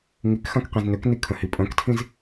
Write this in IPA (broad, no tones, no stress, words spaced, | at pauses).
ŋikxãk qĩznøkni kʰə̃hipʼœ̃ktʰĩz